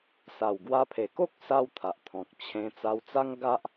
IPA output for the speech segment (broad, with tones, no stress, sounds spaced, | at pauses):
s a˨˩ w ɡ w a˧ pʰ e˨˩ k o˦ k̚ s a˧ w t̪ʰ a˨ ʔ t̪ʰ ɔ̃˨ k̚ t͡ɕʰ ẽ˧ t͡s a˧ w t͡s a˦ ŋ ɡ a˦ ʔ